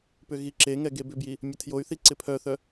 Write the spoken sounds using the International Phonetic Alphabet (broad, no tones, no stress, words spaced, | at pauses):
pʏɣiǁeŋɛ ɡebʏbji | mʲətʰjoy̯θi ǀɪpʰœθœ